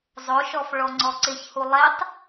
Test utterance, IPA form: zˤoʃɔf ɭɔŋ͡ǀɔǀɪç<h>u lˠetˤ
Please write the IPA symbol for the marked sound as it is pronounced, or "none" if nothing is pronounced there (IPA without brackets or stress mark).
h